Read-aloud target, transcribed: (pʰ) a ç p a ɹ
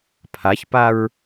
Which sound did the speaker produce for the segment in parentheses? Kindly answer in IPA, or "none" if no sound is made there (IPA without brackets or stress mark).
pʰ